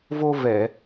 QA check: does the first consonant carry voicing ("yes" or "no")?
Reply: yes